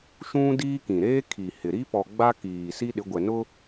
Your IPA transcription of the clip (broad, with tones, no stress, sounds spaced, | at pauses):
ʃ ũ˦ d iː˦ k ĩ˨ ɾ eː˦ kʰ i˨ h ɪ˨ ɾ i˦ p ɔ˨ ɡ͡b a˦ k iː˨ s i˦ ɗ ɪ˨˦ ɡʷ ɛ˨ n ʊ˦